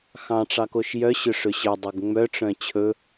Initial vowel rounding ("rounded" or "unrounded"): unrounded